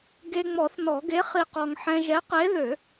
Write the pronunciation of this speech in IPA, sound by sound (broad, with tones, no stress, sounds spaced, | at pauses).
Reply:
ɡ e˧ ŋ͡m ɔ˨˩˦ θ n ɔ˨˩˦ ɡ e˨˥ χ i˧ q ɔ˧ ŋ ħ ɛ̃˧ ʒ ɛ˨˥ q e˨˥ ð ø˨˩˦